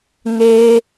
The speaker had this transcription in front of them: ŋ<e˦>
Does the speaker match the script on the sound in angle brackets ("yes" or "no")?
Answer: yes